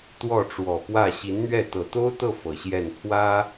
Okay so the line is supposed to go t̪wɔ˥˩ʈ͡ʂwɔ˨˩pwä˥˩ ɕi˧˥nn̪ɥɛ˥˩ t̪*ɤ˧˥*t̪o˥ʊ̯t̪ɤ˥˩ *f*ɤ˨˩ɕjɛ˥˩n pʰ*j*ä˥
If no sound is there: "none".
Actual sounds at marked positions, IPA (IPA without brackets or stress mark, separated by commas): ɤ˨˩, f, w